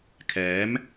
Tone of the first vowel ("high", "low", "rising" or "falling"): rising